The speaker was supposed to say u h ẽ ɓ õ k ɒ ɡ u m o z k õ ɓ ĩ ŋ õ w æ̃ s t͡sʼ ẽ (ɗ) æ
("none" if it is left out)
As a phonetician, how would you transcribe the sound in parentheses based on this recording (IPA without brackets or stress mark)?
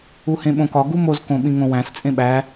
ɓ